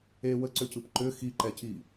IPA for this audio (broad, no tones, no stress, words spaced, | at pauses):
e wəǀʏcɯp ǃʏ xiǃɛci